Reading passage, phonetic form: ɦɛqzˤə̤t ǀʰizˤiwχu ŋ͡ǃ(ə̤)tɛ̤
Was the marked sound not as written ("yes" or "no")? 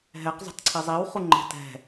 yes